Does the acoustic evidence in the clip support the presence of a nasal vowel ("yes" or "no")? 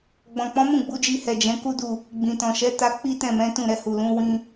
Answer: yes